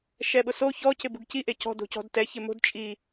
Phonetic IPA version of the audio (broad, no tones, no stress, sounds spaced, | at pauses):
ʃ ɛ ɓ ʊ s o ç ɔ c ɪ b u ɡ c i ʔ e c ɔ̤ d o̤ c ɔ̤ d t ɛ ç ɪ m o̤ d t͡ʃʼ i